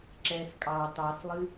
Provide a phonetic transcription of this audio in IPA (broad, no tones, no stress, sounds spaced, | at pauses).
ǁ ɛ s kʼ ɑ t ɑ s lˠ ɨ